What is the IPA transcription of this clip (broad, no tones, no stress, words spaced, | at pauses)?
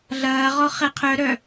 ɮɐː ʁɔχɛqʰœɾœ